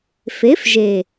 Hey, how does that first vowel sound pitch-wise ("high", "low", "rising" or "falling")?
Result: rising